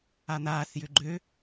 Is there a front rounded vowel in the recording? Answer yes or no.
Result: yes